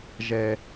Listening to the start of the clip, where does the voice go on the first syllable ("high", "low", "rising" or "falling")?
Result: low